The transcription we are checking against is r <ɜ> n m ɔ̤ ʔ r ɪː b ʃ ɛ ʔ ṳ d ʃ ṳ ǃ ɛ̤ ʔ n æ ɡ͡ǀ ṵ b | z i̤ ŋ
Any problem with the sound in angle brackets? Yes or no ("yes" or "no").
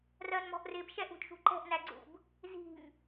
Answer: no